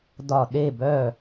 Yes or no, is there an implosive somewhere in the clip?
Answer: yes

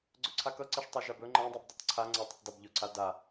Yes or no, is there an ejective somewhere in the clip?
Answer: no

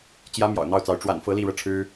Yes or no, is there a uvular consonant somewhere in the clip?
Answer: no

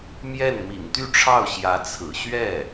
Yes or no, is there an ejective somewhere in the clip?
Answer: no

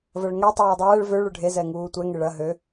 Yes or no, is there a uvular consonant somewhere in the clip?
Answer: no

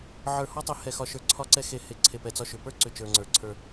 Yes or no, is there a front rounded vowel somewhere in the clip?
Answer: yes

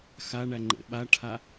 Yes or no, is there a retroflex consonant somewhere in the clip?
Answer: yes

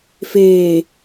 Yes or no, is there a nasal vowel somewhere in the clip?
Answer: no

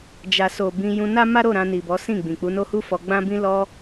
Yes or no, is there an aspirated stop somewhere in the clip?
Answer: no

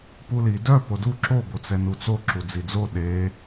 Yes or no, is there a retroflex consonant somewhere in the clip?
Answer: no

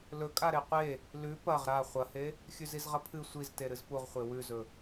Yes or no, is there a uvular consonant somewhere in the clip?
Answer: yes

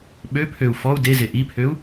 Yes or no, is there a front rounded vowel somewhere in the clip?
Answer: yes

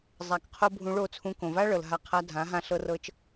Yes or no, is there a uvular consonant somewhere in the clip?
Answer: yes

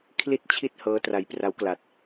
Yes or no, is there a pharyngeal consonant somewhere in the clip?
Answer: no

